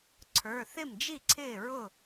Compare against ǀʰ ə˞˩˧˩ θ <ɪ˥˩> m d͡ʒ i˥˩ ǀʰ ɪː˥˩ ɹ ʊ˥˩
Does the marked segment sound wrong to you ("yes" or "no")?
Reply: no